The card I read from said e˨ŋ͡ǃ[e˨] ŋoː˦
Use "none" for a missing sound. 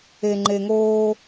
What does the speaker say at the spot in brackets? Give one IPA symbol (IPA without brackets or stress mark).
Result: e˨